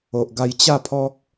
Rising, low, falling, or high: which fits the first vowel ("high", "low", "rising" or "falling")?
low